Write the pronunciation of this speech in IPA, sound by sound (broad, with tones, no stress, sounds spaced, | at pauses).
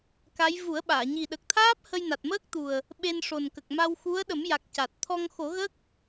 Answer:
k a˧˥ j v u˨˩˦ ə̯ ɓ aː˨˩˨ ɲ i˨˩ ɗ ə˨˩ k̚ t̪ʰ aː˦˥ p̚ h ə˧ j n a˨˩ t̚ m əː˦˥ k̚ t̪ u˨˩ ə̯ | ɓ e˧ n ʂ o˨˩ n k ə˨˩ k̚ m a˧ w x u˧˥ ə̯ ɗ ə˨˩˦ m j a˨˩ k̚ c a˨˩ t̚ t̪ʰ ɔ˧ ŋ x o˨˩˦ ɣ ə˦˥ k̚